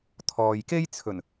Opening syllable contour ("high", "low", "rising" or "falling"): low